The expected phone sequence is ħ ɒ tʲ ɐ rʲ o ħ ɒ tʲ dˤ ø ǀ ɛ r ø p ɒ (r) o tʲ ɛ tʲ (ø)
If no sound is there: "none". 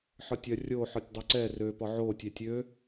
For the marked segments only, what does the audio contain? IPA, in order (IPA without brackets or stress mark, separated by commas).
ʕ, ø